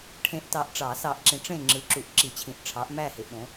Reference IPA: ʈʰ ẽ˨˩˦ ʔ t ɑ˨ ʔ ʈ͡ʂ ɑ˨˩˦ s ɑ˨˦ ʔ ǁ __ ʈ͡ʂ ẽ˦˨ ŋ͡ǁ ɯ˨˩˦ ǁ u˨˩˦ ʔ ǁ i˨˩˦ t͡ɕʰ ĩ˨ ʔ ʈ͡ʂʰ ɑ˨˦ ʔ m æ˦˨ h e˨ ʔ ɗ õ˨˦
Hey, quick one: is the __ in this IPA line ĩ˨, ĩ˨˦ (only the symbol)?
ĩ˨